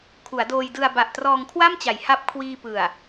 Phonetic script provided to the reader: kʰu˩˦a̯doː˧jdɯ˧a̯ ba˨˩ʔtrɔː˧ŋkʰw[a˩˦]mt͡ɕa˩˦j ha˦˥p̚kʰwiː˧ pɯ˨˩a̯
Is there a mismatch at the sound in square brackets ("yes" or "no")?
yes